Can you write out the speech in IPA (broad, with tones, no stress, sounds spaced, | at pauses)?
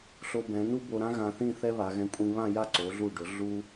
ɬ o˧ b ɛ̃˩˧ n u˥ b o˧ ɾ ã˥ ɣ ã˧ θ ĩ˥˧ θ ɛ˥ β a˩˧ ɣ ɛ̃˧ kʷʼ ĩ˧ β ã˥˧ j a˥˧ ǀ o˩˧ ɮ u˧˩ ɖ ʊ˩˧ ɮ u˥